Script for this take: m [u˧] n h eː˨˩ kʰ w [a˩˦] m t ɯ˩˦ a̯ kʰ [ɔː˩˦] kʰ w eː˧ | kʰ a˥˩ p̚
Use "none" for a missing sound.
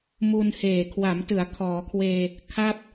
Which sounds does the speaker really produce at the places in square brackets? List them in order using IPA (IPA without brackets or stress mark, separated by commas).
u˧, a˩˦, ɔː˩˦